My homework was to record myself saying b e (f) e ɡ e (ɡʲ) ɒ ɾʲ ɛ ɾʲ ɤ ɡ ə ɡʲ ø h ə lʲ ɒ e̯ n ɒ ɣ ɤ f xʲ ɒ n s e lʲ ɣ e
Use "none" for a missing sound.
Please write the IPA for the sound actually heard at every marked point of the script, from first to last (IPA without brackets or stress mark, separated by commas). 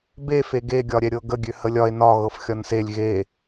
f, ɡʲ